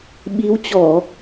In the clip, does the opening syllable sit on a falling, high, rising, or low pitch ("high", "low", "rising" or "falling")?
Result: rising